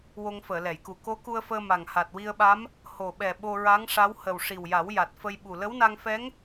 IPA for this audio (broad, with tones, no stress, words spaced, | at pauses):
wo˧ŋfəː˨˩˨lɛ˨˩˨jku˨˩ ko˧˥ku˧ə̯fəː˧ ma˨˩ŋha˨˩t̚wi˧ə̯ɓa˧˥m | ho˨˩ɓɛ˨˩ ɓo˧ɹa˧˥ŋʂa˧˥w hə˨˩w ʂi˨˩wja˨˩˦w ja˨˩t̚fə˧jɓu˨˩ lə˧˥wna˧ŋ fɛ˧˥ŋ